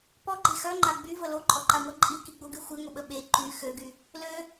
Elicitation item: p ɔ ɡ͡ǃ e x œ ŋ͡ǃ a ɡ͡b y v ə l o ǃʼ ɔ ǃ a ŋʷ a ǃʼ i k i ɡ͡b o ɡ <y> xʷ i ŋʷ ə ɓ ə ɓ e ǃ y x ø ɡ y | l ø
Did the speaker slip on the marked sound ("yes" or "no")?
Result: no